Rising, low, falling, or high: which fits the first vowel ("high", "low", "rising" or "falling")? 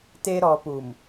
high